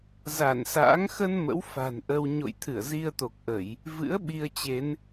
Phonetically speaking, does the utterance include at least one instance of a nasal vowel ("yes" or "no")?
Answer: no